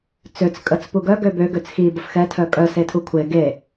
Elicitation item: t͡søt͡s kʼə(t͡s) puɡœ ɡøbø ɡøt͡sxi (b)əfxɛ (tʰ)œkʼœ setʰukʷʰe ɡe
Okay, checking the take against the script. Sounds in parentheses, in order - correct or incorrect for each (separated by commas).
correct, correct, correct